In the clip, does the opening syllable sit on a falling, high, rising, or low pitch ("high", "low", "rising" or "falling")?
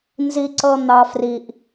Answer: high